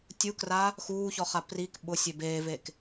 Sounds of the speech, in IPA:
tʲukra | xuːçɔχa prik ɓʊsʲɛ beːvek

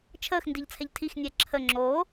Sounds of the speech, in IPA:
t͡ʃʰəːx ndiʎt͡sʰɛʎtʰix nʲɛ ǁʰə ŋ͡ǁoː

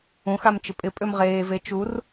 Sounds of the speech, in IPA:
ũxam t͡ʃɪpʼɪpʼøm ʁeːve t͡ʃur

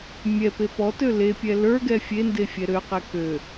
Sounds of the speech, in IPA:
mʲɛpe pɔtø lepʲɛ lə˞ɡɛ fʲende fʲɛɾøqɛ kø

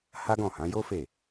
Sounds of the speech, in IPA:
ha˦ɡɔ̃˦˨hã˨˦jo˦ fe˦˨

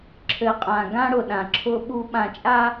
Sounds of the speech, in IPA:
ǁʰɘ˨qʼã˨ɡã˦ ɽʊ˨ɗã˨ǁʰʊ˦ɓu˦ ɓã˨t͡ʃʼa˦

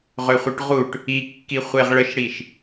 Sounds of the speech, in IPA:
ʁøχʷœʈʁuʈ | ikːi χʷeʁɭəʃɽiʃ

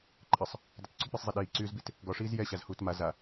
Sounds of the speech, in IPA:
ǃʰəsˤ | dˤətǀuk͡pisˤzˤi ɗiːǀyːzbit | ɡɔʂiːz jɛɕazhuːt ma za

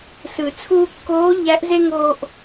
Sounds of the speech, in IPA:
sɯ˩t͡sʰuː˧ kːoː˧˥ ʎæ˧˥ʔze˥ ŋoː˧ʔ

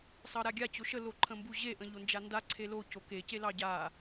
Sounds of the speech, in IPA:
sɑɾaɡʲa t͡ɕoʃə loǃʰə̃mbuʑe ʔə̃ʎond͡ʒanda ǀʰelo coke celɑɟa

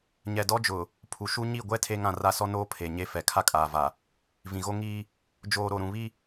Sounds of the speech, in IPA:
ɲɛ˨dɔ˦d͡ʒʊ˨ | pʰu˨ʃu˦ ɲi˦˨ɡʷɛ˦ tʰe˦ŋã˦˨ra˦ sɔ˦noː˦ pʰe˨ɲe˦ fɛ˨kʰa˦kʼaː˨va˨ | vĩ˨ɣo˦ŋiː˦ | d͡ʒoː˨ ɾo˨ɾũ˨βi˦

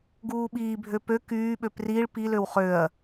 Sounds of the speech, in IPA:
ɡuːɓiːbʱø pø kyːɓø priːɭ piløw χøɐ̯

